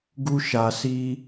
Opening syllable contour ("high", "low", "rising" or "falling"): high